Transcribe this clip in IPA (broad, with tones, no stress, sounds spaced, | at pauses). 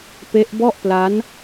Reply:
p e˦˥ ʔ b ɔ˥˩ ʔ p l a˦˥ n